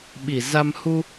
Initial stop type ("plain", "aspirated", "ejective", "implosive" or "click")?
implosive